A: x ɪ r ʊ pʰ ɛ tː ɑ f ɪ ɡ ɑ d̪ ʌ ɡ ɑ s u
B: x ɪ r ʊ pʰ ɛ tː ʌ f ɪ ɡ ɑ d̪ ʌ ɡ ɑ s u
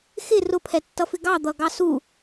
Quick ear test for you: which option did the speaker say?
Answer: B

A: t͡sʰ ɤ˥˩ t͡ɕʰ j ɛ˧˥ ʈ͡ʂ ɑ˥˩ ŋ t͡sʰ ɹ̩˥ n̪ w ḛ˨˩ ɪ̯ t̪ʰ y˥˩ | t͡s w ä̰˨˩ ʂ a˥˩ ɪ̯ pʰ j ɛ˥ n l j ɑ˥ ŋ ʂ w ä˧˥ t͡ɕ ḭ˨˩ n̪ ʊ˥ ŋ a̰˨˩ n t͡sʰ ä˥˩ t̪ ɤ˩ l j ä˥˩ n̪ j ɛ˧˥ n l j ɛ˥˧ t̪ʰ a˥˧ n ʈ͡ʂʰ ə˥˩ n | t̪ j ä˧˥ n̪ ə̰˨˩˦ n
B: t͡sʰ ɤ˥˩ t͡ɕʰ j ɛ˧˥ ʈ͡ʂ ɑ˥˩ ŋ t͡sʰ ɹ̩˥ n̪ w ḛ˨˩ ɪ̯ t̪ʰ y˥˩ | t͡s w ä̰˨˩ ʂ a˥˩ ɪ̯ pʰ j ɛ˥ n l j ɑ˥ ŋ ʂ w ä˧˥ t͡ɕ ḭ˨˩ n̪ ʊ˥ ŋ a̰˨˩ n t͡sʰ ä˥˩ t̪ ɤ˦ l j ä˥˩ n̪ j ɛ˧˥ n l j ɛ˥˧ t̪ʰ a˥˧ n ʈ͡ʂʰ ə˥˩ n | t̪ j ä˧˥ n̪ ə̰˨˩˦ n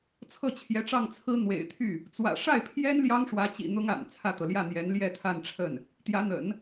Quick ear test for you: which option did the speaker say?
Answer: A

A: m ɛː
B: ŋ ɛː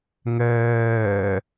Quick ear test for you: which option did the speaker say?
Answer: B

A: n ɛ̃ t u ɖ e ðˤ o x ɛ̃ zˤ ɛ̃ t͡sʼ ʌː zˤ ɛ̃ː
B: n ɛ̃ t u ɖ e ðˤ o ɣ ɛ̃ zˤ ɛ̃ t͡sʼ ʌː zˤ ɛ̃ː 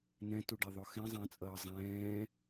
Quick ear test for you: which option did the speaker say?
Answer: A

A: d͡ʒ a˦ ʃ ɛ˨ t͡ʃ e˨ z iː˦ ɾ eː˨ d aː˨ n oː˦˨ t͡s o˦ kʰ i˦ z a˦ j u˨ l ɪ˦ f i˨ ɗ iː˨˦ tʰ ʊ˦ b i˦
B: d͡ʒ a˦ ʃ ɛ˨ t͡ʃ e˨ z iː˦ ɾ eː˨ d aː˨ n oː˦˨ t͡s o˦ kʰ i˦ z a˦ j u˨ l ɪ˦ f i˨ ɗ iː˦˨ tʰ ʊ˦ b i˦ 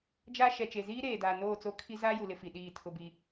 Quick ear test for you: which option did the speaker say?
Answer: B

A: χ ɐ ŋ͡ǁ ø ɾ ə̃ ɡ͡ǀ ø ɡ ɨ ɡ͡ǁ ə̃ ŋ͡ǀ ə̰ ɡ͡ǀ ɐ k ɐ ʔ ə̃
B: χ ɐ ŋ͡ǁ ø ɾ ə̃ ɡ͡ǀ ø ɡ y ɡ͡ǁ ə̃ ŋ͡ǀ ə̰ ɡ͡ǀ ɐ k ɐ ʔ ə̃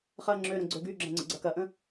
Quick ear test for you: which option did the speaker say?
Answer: B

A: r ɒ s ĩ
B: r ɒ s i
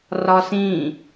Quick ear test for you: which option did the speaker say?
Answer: A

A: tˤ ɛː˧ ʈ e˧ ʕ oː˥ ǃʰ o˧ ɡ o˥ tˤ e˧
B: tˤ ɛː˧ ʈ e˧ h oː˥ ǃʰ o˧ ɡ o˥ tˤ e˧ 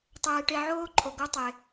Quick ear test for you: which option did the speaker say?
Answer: A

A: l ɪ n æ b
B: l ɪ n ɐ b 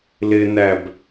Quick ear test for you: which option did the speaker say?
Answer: A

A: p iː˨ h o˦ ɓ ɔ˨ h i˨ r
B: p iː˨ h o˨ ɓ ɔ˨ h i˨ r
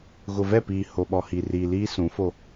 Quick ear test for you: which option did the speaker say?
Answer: B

